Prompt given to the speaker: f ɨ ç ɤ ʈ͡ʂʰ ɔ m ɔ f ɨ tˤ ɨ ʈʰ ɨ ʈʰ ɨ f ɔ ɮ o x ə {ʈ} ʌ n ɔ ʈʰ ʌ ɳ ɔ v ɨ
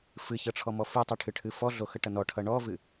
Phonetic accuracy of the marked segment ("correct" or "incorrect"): correct